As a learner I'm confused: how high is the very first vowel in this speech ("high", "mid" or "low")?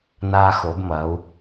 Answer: low